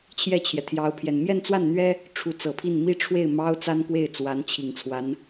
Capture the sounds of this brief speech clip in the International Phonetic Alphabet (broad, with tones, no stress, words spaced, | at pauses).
t͡ɕʰjɛ˥˩t͡ɕʰjɛ˩t̪ʰjɑ˧˥ʊ̯pʰjɛ˨˩n mjɛ˥˧nt͡swa˥˩nn̪ɥɛ˥ | ʈ͡ʂʰu˧˥t͡sɤ˨˩pʰi˥˩n mi˥ʈ͡ʂʰwe˥˩ɪ̯mɑ˥ʊ̯ t͡sa˥n kwe˥˩ɪ̯ t͡swa˧˥nt͡ɕʰi˨˩ŋt͡sʰwa˧˥n